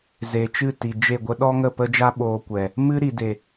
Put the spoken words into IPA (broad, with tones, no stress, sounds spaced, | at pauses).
z e˨ t͡ʃ ɨ˦˨ t i˨ d͡ʒ e˦˨ ɡʷ ə˦ ɗ ɔ˦ ŋ ə˦˨ p ə˦ d͡ʒ a˦ ɓ oː˧ kʷ ɛ˨ | m ɨ˦ ɾ i˨ d e˨